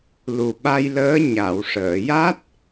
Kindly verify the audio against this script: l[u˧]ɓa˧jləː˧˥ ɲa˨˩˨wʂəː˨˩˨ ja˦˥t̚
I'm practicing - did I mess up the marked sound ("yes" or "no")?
yes